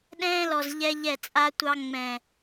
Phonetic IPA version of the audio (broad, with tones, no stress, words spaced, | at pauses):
ɗɛ̃ː˧lɔ˨z ʎɛ˦ʎɛ˦˨t͡sʼa˦tʷɑ˦ ŋ͡mɛ̃˨